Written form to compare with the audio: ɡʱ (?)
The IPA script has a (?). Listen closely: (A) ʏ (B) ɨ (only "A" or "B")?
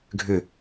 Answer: A